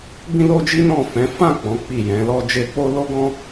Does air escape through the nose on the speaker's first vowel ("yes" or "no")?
yes